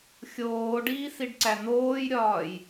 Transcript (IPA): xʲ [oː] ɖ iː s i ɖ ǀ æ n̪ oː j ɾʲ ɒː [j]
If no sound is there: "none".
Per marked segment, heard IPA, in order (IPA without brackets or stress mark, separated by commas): oː, j